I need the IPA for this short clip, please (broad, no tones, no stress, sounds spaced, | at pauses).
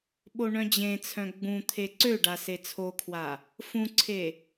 ɓ o ɳ œ̃ d͡ʑ ẽ t͡sʰ œ̃ ɡ͡b ũ t̪ʰ e ǀ ø ɖ a s e t͡sʰ o kʰ w a | f ũ ǀʰ e